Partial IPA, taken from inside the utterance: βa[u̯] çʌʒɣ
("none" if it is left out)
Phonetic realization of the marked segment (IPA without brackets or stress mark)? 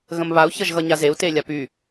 u̯